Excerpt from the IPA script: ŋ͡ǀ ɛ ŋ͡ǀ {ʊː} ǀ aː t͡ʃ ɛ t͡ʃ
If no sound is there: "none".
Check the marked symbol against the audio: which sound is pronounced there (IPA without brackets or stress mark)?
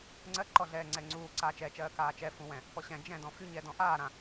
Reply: uː